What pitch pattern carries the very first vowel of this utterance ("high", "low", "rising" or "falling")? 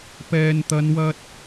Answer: low